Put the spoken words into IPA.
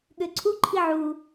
ɠ ø ǀʰ u ǃʰ i ʕ u

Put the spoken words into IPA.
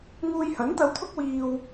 ŋ uː˧ j h ɐ˨˥ n t̪ ɐ˧ w t̪ʰ ʊ˥ k̚ w iː˧ w

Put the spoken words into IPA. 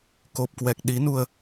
k o˨˩ p̚ k w ɛ˨˩ k̚ ɗ i˨˦ n u˧ ə̯

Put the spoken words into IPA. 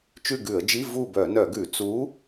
t͡ʃ ʉ˦˨ ɡ ʉ˧˩˧ ə̯ d͡ʒ i˧˥˧ v u˦˨ b œ˧˩˧ n œ˧˩˧ ɡ ʉ˧˩˧ t͡s u˨˥

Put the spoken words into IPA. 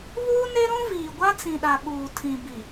β uː˦ n e˦ ɾ ũ˦ v iː˨ ɡʷ a˦ t͡s ĩ˨ ɗ a˨ ɓ uː˨ tʰ ĩ˨ b i˨

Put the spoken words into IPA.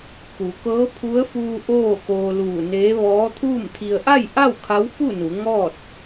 k u˩˧ k ɤː˧˥ pʰ u˧˥ ə̯ f uː˧ ʔ oː˥˨ k oː˧ l uː˧˩ n eː˧˥ ʋ ɔː˧˥ t̪ʰ uː˥˨ m t̪ʰ i˧ ə̯ ʔ a˥˨ j ʔ a˥˨ w kʰ a˧˥ w f u˥˨ n u˩˧ ŋ ɔː˥˨ t̚

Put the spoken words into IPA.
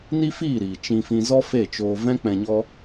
n i˦ f iː˦˨ ɾ iː˨ t͡ʃ ĩ˧ f ĩ˧ z ɔ˦ f e˦˨ t͡ʃ oː˧ v ɛ̃˦ k͡p ɛ̃˧ ɲ ɔ˦

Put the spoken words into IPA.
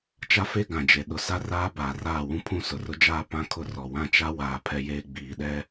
t͡ʃ a˦ f e˦ ɡ ã˨ d͡ʒ e˨ ɗ ʊ˨ s a˦ r aː˦ b aː˨ r aː˦˨ w ũ˦ pʰ ũ˦ s ʊ˨ r ʊ˦ d͡ʒ aː˦ p ã˦ kʰ ʊ˦ r ɔ˨ w ã˦ t͡ʃ a˦ w aː˨ pʰ ɛ˦ j eː˦ ɡ͡b iː˨ ɗ ɛ˦

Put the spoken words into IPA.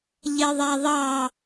ʎ e ðˤ æ ðˤ ɑ

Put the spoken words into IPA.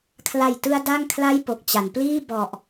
kʰ l a˨˩ j t ɯ˧ a̯ d a˥˩ ŋ kʰ l a˥˩ j p o˨˩ k̚ t͡ɕ a˩˦ n p l iː˥˩ b ɔ˨˩ ʔ

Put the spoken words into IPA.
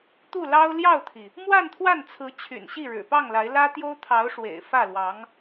t̪ u˥˩ l ɑ˥ ʊ̯ l j ɑ˥˩ ʊ̯ t̪ʰ i˩ | m w a˥˧ n t̪ʰ w a˥˩ n t͡sʰ ɹ̩˧˥ t͡ɕʰ y̰˨˩ n ɕ i˥˩ ɻ ɻ̩˨˩ p ɑ˥˩ ŋ l a˧˥ ɪ̯ l ä˥ t̪ j o˥ ʊ̯ t̪ʰ ɑ˧˥ ʊ̯ ʂ w ḛ˨˩ ɪ̯ f ä˥˩ l w ɑ˧˥ ŋ

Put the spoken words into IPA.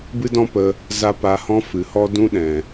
b ɨ˦ d ɔ̃˦ p ə˧ | z a˦ p a˧ h ɔ̃˦ f ɨ˨ h ɔ˧ d ũ˧ ɗ ɛ̃˨

